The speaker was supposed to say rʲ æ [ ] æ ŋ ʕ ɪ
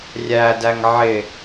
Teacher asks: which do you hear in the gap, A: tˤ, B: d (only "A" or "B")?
B